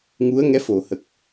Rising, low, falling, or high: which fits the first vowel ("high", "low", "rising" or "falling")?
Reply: rising